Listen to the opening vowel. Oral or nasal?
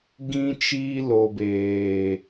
nasal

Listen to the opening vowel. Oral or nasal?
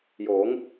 oral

